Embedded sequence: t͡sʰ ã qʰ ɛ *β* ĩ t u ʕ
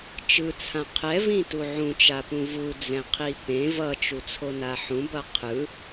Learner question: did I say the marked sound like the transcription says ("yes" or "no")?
no